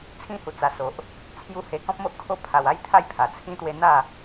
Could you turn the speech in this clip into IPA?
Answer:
t͡sʰ ĩ˦ h u˧ t͡s a˧ s o˨ ʔ | t͡sʰ j u˦ h e˧ k ɔ̃˦ p̚ m o˦ ʔ kʰ o˥˧ pʰ a˧ w a˦ j t̪ʰ a˥˧ j pʰ a˨˩ t͡sʰ ĩ˧ t̪ w e˧ n̪ a˥˧

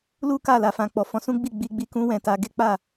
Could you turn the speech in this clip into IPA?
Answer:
l u˦ k a˦˨ l a˨ f ã˨ k͡p ɔ˨ f ɔ̃˧ s ũ˦ ɡ͡b i˦˨ ɡ͡b i˧ ɡ͡b i˧ k ũ˦ w ɛ̃˧ t a˧ ɡ e˦ k͡p a˦˨

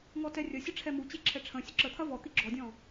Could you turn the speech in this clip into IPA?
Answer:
ŋ ɔ t ɛ rʲ ɐ sʲ ə ʈ͡ʂʰ ɛ m u t͡ɕ e ǁʰ ɛ ʈ͡ʂʰ ə̃ sʲ ə ǁ ə t̪ʰ ɐ v ɔ t̪ i ɡ͡ǁ ɔ dʲ ɔ̃

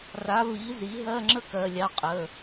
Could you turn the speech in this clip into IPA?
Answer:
r a˩˥ v i˩˥ z i˩˥ ɦ ɜ˧˥˧ ŋ͡ǁ ə˥ k ɜ˩˧˩ lʲ ɑ˧ qʼ ə˩˧˩

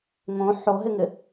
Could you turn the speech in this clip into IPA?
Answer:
ŋ õ ħ o ɦ ɪ ŋ ɪ

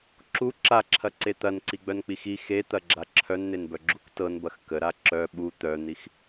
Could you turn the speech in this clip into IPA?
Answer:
ǁ u ǁ a ǁʰ ɐ ǀ e t̪ ɐ n ǀ i ɡ͡b œ n k͡p i x i x e t̪ ɐ ɡ͡ǁ a ǁʰ œ n n̪ e n b œ ɡ͡ǁ u kʷ t ɤ n b ɐ x k ə ɾ a ǁ œ ɓ u t̪ œ n̪ i x

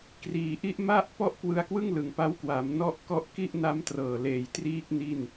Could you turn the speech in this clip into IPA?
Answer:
k r iː˩˦ ʔ i˦˥ ʔ m a˥˩ ʔ p ɔ˥˩ ʔ k w ɯ˧ a̯ k w ɯ˥˩ ŋ l ɯ˩˦ ŋ p a˦˥ w k w a˩˦ m n ɔ˥˩ ʔ k ɔ˦˥ ʔ k i˥˩ ʔ n a˦˥ m t r ɤː˨˩ l eː˩˦ j t r iː˦˥ k̚ n i˥˩ n

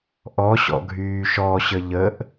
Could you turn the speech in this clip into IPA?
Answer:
ʔ ɔ ɕ ɔ̰ ɡʱ yː ʃ ɔ ɕ ə ʎ ə ʔ

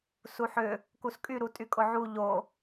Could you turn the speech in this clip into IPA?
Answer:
s u ħ ʏ | k u s kʼ y ɾ u tʼ y kʼ ʊ ʕ u ʎ o

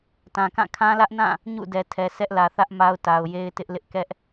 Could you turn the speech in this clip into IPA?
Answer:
t ã˨ k ã˦˨ kʰ ã˦ l ä˦ ʔ n ã˦˨ | ɲ ṵ˦˨ d ɛ˨ tʰ ɛ˨ sʰ ɛ˦ ʔ l ä˨ θ ä˦ ʔ m a˦ ʊ̯ t a˨ ʊ̯ j e˦ ɪ̯ t ɪ˦ ʔ l ɪ˦ ʔ k ɛ˦ ʔ

